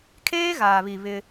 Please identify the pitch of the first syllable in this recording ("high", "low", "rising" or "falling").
high